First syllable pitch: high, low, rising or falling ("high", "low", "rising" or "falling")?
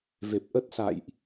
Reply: low